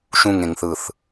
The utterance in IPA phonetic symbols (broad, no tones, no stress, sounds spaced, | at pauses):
ʃ ũ ŋ ẽ ŋ θ ɯ θ